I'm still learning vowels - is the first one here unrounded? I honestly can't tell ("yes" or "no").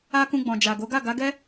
yes